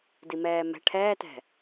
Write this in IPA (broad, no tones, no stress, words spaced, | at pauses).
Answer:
dimɛːmɛ̤ ʈʰɛːtɛ̤